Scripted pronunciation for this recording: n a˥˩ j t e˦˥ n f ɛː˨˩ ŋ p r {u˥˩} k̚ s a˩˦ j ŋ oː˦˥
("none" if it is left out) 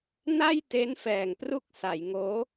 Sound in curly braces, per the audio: u˥˩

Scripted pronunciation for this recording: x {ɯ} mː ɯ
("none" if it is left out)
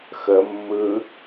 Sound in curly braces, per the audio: ə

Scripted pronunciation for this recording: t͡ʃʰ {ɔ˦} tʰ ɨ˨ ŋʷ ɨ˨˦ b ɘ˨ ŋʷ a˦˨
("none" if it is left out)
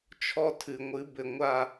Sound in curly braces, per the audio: ɔ˦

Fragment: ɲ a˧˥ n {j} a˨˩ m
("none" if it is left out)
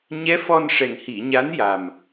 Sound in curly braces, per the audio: j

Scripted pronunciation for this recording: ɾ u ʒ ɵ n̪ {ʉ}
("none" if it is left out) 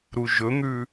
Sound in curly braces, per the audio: ʉ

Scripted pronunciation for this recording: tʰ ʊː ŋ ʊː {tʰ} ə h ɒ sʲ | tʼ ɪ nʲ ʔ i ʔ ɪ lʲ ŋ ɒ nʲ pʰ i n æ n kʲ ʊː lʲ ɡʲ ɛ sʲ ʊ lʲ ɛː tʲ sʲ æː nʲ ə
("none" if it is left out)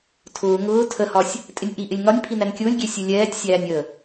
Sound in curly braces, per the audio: tʰ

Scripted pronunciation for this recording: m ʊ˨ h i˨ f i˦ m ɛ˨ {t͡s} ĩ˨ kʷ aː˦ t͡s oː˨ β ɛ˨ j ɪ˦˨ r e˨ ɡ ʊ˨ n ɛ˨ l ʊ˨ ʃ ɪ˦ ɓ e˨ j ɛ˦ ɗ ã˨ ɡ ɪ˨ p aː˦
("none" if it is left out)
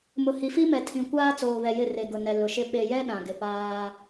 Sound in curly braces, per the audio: tʰ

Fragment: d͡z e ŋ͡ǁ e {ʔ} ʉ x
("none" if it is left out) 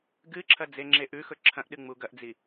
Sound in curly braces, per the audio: ʔ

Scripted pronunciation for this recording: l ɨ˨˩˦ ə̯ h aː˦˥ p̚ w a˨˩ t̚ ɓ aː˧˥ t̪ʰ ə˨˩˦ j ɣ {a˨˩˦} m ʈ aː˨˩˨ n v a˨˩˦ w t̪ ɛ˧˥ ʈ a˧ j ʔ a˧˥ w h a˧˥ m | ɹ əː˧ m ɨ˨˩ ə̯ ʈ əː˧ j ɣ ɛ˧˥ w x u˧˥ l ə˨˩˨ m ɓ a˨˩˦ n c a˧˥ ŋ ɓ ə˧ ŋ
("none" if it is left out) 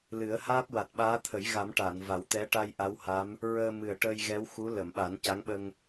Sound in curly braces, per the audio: a˨˩˦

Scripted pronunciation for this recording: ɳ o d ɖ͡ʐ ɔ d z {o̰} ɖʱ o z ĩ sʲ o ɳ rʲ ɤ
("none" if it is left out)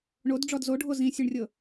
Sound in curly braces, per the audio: o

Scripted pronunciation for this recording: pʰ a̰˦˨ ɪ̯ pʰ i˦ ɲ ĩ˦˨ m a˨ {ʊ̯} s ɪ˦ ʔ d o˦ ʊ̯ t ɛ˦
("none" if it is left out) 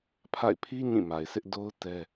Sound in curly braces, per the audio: ɪ̯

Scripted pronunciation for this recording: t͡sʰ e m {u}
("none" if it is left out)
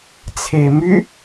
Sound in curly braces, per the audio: y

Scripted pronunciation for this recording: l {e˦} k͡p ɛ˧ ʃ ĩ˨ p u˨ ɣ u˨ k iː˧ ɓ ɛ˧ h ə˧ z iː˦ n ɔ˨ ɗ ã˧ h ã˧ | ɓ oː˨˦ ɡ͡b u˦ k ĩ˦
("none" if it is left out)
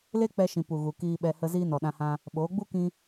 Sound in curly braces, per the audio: e˦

